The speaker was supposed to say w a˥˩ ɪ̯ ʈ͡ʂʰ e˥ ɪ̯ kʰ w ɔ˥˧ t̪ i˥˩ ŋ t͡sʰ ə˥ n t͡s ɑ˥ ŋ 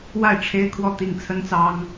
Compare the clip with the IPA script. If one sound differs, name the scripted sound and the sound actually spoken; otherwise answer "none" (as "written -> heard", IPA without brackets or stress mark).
none